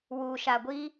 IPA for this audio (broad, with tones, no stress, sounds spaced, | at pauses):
w uː˨ ʃ a˨ ɡʷ iː˦